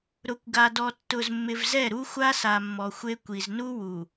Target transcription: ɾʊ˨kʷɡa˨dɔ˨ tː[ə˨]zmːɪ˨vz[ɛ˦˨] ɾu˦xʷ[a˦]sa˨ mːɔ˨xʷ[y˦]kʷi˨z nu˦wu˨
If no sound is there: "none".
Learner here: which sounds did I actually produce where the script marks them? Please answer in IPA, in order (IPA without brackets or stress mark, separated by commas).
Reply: ʊ˨, ɛ˦˨, a˦, e˦